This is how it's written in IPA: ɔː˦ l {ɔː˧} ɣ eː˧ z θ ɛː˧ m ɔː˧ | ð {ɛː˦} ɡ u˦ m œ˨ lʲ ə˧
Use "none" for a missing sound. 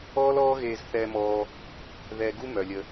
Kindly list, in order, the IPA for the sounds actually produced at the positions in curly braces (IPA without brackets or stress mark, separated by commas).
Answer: ɔː˦, ɛː˧